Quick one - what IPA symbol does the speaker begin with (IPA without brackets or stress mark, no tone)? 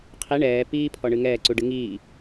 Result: qʰ